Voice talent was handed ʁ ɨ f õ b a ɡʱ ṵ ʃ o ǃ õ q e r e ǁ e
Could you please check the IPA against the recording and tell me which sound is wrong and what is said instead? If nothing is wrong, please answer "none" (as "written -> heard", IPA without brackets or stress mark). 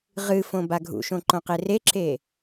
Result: o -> õ